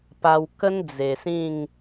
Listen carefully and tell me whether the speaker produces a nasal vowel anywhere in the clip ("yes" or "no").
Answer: yes